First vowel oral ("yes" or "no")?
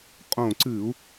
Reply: no